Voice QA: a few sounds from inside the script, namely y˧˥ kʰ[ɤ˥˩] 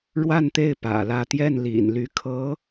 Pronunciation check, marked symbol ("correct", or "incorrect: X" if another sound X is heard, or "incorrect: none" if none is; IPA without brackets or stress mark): incorrect: ɤ˧˥